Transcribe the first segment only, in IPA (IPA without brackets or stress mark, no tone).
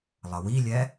lˠ